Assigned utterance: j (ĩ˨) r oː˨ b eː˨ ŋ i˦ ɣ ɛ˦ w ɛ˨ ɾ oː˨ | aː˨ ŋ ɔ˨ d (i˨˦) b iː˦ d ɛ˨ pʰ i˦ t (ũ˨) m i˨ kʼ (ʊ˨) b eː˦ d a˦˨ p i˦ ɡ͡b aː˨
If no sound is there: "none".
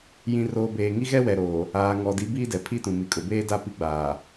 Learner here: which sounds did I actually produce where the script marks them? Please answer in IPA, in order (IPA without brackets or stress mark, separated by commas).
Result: ĩ˨, i˨˦, ũ˨, ʊ˨